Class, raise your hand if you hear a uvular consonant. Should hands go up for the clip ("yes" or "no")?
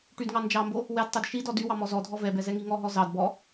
no